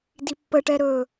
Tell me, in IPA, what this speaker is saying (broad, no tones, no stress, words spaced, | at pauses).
dipːəʈɛ ɾɵ